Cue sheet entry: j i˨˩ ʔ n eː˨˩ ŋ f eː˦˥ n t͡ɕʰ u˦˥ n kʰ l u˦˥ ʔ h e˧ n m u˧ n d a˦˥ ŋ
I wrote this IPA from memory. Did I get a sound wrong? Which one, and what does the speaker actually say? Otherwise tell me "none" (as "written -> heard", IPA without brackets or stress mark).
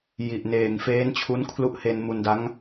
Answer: none